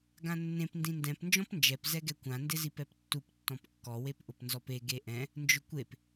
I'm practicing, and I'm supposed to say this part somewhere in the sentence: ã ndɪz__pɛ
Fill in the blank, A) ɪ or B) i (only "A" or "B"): B